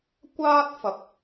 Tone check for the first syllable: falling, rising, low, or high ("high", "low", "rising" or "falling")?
high